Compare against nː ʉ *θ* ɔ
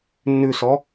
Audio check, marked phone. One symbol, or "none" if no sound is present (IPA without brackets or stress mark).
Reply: s